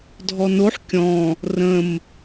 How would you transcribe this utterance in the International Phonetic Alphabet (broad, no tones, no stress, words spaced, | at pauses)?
dʱɔnoħ kʲɔ̃ | rə̃m